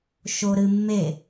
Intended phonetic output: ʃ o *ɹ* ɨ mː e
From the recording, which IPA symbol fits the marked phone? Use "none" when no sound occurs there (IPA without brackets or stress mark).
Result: ɾ